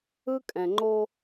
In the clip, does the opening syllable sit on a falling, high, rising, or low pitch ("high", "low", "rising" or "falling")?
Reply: high